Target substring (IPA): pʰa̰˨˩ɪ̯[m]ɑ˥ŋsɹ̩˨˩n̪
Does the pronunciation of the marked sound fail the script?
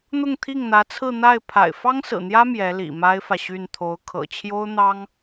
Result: yes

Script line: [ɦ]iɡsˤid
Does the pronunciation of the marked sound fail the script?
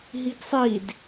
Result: no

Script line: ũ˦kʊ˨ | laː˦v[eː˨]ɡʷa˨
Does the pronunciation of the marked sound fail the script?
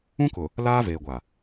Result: no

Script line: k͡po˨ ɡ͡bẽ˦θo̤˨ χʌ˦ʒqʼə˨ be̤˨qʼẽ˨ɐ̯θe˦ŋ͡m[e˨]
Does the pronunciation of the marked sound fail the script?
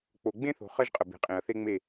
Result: yes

